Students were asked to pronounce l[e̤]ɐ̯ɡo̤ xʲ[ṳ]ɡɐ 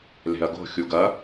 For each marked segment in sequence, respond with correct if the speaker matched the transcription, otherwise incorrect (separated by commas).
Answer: correct, incorrect